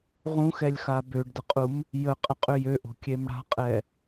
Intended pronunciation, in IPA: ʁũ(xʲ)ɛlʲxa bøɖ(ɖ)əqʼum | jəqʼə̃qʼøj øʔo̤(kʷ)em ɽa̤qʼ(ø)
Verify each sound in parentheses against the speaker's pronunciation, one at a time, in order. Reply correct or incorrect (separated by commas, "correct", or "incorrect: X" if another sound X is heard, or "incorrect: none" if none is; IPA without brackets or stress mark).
incorrect: x, incorrect: d, incorrect: kʲ, incorrect: ɛ